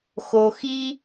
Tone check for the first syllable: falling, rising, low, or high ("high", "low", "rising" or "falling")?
low